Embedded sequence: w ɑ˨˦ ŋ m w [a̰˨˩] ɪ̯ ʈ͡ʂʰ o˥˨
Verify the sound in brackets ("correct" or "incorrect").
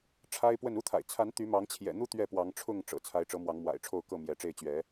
correct